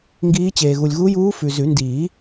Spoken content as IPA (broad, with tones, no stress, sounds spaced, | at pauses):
ŋ ɡ iː˧˥ t͡ɕ eː˨ ɣ u˨ lʲ ɣ u˧˥ j uː˧˥ f ʉ˨ z ʉ˨˩˦ n d iː˨˩˦